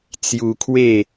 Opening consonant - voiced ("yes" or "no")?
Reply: no